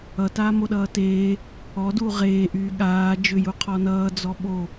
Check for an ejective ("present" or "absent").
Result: absent